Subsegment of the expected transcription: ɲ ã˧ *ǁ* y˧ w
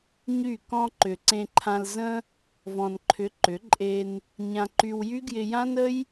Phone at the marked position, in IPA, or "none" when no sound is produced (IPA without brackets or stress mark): ǃ